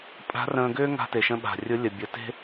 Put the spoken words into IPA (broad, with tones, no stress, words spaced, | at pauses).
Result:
pʼa̤˧˥rə̃ː˧ɡʏː˥ ŋa̤˧te˩ʃə̃˧ɓa̤˩ rʲʊ˧˥ lʲə˩bʲə˩˧ te̤˥